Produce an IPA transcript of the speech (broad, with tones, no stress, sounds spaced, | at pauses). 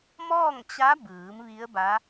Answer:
m ɔː˥˨ ŋ t͡ɕ a˧˥ b ɯː˩˧ m ʋ i˧˥ ə̯ b a˧˥